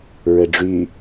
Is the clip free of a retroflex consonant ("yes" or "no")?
no